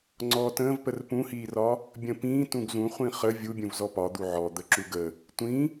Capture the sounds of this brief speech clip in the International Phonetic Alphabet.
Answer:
ŋ͡ǀ ɔː t ə̃ː v p ə r p ũ h iː r ɒ | bʲ ə̃ p ĩː t ũ ɡ z ũ χʷ ĩ χ ə vʲ u bʲ ũ v z ɔ p ɒ d̪ u ʕ ɔ d̪ ə ǁ u ɡ ə | tʷ ĩ

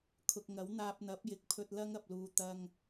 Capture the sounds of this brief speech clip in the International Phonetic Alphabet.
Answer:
kʰ ʊ˨ k̚ ŋ ɐ˨˥ w n̪ aː˧ p̚ n̪ ɐ˨˥ p̚ j ɪ˨˥ k̚ pʰ ɵ˧ t̚ l ɐ˥ ŋ ɐ˨ p̚ l uː˨ t̪ ɐ˨ ŋ

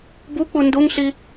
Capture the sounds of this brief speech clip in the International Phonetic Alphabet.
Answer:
b u k͡p u n d u ŋ ɬ i

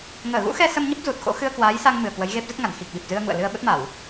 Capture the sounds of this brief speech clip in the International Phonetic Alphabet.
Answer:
ŋ əː˧˩ ɣ ṵ˧˥ x ɛ˧ s ə˧ m ɲ ə˦˥ p̚ z u˨˩ t̚ x o̰˧˥ x ɨ˧ ə̯ k w aː˨˦ j s a˧ ŋ m ɨ˨˩ ə̯ k w ə˨˦ j ɣ e˦˥ p̚ z ə˦˥ t̚ ŋ a˧˩ n x i˨˩ k̚ ɓ i˨˩ p̚ z ɨ˧ ə̯ ŋ ṵ˧˨ ə̯ l ɨ˧ ə̯ ɓ ə˦˥ t̚ m a˧˩˨ w

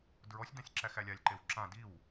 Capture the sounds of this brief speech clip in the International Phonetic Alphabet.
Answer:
d ɹ ɔ sʲ d ã sʲ ǁ æ x æ lʲ a lʲ ǃ e w ǁ ã d i w

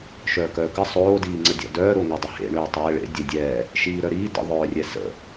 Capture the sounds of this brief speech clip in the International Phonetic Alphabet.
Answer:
ʃ œː k œː k ə sˤ oː d iː ŋ͡ǀ ə dʲ ɔ̰ d œː ɾ o ŋ ɛ dˤ ə h ḛ ɳ øː tˤ ɛː ɭ ḛ dʲ ɛ dʲ ɛː | ʃ iː ɾ œ ɾ iː d ə̰ ðˤ œː rʲ ɛ s ə̰

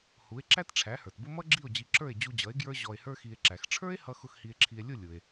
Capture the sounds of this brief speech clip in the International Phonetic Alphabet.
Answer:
h u˩˥ e̯ ǁ æ˥ t ʈ͡ʂʰ æ˩˥ h ə˞˩ t b ʊ˥ m ʌ˥ ɡ͡ǁ i˥˩ o̯ d͡ʑ i˧ ǁ ə˞˥˩ e̯ d͡ʑ u˧ d͡ʑ ʌ˩˥ e̯ ɡ j ə˞˥ ʑ ɔ˧ e̯ h ə˞˥ x i˧ e̯ ǁ æ˩ x ʈ͡ʂʰ ə˞˥ e̯ h ʌ˧ x ʊ˥˩ x h i˧ e̯ ǁʰ i˧ e̯ lʲ ʊ˥˩ lʲ ʊ˩ e̯

